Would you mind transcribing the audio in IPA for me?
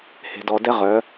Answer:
he̤˨ dɔ˨dɛ˦ʁœ˨˦

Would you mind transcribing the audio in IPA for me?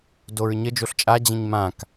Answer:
doɹɲə d͡ʒoɬt͡ʃʼa d͡ʑə̃ɲmãk

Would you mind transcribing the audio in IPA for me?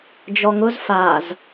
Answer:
d͡ʒɔŋʊz faz

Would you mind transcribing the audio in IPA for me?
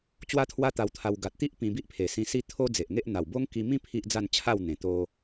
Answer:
t͡ɕwa˦t̪ʰwa˦ t̪a˧wt̪ʰa˧w ɡa˨t̚t̪i˦ʔ pĩ˧ bi˦ʔpʰe˨˩sĩ˧ si˦t̪ʰo˦d͡ze˨ʔŋe˦ʔ n̪a˨˩wbo˦ŋ ki˧mĩ˦ pʰi˦ʔd͡za˥˧nt͡ɕʰa˥˧wn̪ẽ˨˩ t̪o˧

